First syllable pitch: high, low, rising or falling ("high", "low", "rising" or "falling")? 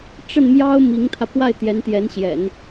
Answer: falling